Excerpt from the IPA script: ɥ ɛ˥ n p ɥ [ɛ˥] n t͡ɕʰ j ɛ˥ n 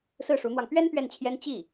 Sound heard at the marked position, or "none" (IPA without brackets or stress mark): ɛ˥˩